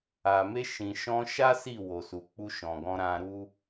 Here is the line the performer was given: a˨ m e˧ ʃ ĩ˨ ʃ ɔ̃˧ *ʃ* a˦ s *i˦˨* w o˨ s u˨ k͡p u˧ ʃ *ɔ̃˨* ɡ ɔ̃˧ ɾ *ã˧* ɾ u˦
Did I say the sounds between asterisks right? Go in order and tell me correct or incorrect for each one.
correct, correct, correct, correct

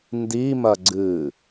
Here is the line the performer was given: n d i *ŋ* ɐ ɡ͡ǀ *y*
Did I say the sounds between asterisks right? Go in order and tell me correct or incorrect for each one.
incorrect: m, incorrect: ɨ

